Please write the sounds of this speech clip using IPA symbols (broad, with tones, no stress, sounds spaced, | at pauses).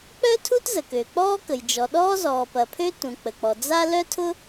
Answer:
k͡p œ˥ tʰ u˥ t z ə˩ k ø˩ k͡p ɔː˥ k ə˩ j d͡ʒ ɔ˩ ɗ ɔː˥ z ɔː˩ p ɐ˩ pʰ ø˥ t ũ˩ k͡p ə˩ k͡p ɔ˩ d͡z a˥ l œ˥ tʰ ʊ˥